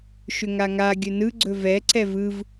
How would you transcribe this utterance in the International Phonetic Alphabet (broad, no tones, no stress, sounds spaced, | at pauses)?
ʃ ʏ ŋ a ŋ a ɡʲ ɵ n ɯ ɡ͡ǀ ɵ v ɛ ǀ ɛ v ɯ v